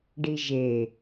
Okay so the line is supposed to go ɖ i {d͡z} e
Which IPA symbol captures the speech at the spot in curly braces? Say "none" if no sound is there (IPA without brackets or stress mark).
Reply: ʒ